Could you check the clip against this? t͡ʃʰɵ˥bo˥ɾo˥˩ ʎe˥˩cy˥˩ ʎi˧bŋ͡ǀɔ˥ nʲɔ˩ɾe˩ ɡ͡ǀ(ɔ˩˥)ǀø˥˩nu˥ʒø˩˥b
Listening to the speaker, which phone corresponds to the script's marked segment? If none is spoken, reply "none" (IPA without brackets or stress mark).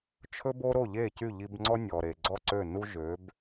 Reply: ɔ˥˩